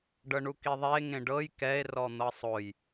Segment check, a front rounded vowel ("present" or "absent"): absent